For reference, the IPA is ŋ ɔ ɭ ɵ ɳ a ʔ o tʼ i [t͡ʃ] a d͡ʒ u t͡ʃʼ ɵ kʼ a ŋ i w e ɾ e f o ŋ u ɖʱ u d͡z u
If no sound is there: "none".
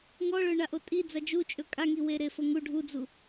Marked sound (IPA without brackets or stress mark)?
d͡z